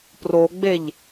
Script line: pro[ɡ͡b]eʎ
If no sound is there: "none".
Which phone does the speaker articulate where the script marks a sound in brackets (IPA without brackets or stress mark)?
ɡ͡b